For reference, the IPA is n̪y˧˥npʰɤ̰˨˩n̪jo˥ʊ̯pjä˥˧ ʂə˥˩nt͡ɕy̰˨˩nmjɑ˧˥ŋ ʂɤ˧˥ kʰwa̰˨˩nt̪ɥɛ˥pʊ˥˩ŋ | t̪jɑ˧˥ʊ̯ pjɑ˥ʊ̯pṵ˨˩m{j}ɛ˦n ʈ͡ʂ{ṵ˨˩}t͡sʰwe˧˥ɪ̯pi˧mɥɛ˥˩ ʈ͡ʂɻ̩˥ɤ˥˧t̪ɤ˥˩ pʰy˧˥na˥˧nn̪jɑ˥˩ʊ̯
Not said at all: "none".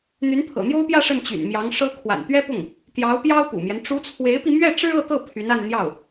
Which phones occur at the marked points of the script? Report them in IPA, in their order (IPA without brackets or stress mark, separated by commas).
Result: j, u˧˥